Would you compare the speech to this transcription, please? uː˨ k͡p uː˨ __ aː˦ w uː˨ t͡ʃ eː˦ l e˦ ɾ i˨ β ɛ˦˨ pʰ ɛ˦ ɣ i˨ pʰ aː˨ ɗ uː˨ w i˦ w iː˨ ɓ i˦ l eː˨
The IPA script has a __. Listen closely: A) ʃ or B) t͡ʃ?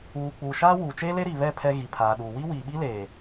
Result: A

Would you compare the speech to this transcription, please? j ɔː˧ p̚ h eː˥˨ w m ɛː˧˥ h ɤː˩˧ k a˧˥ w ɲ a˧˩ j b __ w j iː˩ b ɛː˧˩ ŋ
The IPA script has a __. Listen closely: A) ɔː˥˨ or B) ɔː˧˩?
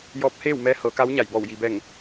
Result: B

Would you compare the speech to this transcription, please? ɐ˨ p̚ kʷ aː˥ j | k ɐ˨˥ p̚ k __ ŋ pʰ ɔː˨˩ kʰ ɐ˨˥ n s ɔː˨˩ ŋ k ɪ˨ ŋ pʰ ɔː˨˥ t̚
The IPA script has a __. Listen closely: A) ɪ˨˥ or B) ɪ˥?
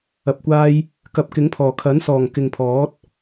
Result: A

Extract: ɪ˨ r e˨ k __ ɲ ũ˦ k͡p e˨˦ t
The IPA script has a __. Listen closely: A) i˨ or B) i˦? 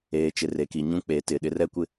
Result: A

